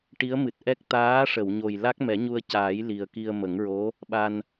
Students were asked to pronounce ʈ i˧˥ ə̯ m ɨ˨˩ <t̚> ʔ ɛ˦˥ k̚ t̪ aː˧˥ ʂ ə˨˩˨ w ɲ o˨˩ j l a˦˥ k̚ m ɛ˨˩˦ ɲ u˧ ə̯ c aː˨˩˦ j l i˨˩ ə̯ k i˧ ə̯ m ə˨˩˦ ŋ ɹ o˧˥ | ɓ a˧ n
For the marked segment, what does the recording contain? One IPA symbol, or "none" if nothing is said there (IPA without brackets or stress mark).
t̚